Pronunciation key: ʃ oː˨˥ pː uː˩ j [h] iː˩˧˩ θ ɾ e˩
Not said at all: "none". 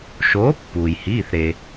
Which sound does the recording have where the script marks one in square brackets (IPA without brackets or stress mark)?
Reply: h